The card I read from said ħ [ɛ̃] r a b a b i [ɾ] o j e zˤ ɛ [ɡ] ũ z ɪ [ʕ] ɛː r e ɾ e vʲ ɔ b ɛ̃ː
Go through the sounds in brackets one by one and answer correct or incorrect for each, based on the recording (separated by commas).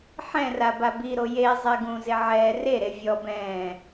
correct, correct, correct, correct